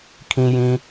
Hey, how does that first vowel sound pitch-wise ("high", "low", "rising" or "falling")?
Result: low